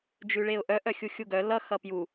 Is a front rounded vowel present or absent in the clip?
present